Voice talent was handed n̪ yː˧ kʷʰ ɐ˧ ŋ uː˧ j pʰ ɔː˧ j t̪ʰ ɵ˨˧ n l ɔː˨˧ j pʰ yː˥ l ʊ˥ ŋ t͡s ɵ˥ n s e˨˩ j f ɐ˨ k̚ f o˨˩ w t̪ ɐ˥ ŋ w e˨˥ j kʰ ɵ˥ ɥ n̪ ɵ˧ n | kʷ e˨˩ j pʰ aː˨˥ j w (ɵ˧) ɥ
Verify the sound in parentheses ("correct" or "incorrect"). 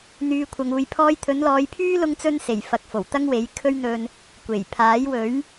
incorrect